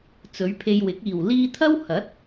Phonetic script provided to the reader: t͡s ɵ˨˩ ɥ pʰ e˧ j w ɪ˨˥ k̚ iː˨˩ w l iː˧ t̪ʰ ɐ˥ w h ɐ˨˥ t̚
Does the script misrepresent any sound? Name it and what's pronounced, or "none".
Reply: ɵ˨˩ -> ɵ˨˧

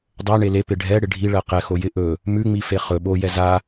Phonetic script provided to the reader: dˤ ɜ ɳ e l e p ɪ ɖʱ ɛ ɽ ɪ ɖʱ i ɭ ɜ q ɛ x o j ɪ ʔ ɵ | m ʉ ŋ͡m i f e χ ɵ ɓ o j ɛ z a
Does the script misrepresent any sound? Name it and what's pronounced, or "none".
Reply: none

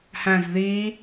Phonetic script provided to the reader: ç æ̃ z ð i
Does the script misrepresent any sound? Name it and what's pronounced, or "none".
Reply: ç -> h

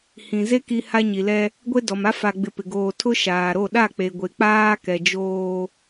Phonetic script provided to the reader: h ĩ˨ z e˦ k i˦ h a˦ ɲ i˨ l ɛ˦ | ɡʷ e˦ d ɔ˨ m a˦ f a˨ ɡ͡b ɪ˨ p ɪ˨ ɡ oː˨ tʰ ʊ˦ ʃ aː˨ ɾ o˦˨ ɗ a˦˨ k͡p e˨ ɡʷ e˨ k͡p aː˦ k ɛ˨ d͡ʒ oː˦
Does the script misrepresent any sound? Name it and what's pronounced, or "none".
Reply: none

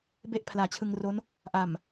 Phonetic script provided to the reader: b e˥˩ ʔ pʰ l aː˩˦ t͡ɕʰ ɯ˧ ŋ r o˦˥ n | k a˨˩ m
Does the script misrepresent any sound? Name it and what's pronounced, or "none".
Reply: k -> ʔ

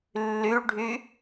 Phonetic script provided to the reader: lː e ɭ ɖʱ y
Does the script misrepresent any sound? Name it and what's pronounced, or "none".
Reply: e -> y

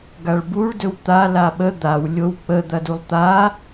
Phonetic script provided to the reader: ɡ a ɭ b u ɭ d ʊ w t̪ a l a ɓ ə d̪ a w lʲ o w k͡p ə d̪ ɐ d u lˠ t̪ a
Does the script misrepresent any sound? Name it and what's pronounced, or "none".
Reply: ʊ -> ɵ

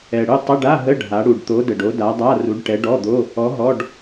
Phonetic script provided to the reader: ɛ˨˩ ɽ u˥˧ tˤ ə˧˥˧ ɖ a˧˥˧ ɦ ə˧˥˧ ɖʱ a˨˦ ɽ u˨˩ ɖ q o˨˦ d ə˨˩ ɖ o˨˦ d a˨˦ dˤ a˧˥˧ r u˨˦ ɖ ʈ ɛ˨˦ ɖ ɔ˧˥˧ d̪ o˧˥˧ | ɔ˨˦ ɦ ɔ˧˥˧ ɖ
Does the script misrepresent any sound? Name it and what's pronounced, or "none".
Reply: q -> t̪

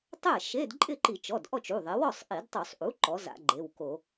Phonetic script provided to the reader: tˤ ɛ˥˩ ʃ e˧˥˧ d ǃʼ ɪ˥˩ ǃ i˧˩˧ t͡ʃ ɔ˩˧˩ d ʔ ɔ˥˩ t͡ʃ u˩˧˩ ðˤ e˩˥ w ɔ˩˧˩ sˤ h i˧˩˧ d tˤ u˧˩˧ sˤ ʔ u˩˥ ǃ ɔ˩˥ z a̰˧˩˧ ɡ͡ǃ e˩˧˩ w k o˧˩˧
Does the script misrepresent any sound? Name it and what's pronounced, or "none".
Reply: h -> ʔ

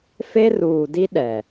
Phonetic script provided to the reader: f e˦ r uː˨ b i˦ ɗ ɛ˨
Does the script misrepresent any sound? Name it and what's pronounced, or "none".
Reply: b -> d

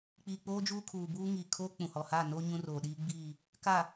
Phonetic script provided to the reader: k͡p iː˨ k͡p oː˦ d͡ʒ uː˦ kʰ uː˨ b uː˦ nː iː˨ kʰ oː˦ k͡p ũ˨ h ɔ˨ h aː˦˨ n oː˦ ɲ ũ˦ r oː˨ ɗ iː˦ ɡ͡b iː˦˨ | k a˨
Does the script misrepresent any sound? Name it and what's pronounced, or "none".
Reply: nː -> ŋ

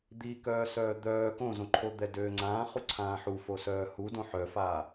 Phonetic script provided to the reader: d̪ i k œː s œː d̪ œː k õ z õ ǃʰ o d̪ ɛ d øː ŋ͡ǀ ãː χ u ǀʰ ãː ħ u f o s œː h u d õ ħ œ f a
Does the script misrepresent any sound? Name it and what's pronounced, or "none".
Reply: none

